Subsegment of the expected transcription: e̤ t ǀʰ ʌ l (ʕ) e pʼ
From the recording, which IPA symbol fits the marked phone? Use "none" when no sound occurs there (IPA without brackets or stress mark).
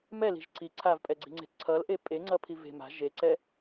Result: ʔ